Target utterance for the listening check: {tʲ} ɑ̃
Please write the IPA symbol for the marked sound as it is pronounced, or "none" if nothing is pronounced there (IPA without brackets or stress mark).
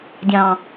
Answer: dʲ